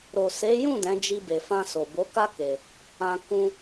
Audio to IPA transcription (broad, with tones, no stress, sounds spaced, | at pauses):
ɾ o˨ s e˨˦ j ũ˦˨ d ɛ̃˨˦ d͡ʒ i˧ b e˨ f ã˧ s o˨ b o˨˦ k a˦ k e˧ | ã˧ k ũ˧